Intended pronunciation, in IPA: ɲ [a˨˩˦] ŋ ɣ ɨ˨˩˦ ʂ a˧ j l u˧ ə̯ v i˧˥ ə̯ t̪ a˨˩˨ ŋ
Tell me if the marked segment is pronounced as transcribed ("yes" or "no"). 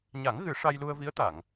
yes